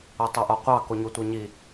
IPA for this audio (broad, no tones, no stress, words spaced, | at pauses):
otˤɤʔɒqʷɑ koɲotʷɤɲi